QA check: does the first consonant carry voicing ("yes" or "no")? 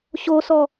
no